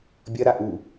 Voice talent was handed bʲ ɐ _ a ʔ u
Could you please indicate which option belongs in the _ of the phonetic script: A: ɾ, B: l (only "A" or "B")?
A